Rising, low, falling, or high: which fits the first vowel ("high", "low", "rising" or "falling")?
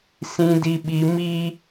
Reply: high